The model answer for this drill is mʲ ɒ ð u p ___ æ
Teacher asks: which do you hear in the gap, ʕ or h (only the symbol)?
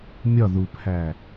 h